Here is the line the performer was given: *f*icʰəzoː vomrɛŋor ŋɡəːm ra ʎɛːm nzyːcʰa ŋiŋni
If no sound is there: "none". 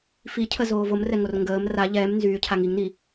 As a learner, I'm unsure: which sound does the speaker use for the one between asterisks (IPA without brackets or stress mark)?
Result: f